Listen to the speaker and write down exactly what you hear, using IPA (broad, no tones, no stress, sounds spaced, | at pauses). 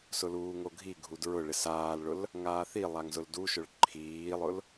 s ʊ l uː ŋ o ɡʱ i ɡʱ u d ɹ ʊ ɭ ɪ s aː l ɭ ʊ l | ŋ aː θ i lˠ a ŋ z ʊ l d u ʃ ʊ ɭ ǃʰ iː lˠ ʊ l